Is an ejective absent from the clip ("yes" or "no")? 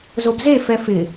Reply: yes